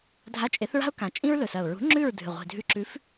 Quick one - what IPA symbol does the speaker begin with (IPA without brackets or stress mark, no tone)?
dʱ